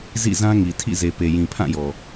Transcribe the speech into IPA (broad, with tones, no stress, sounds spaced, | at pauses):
z ḭ˦˨ z ã˦ ŋ i˨ tʰ ḭ˦˨ z e˨ p e˨ j ĩ˨ pʰ ã˦˨ j ɔ˨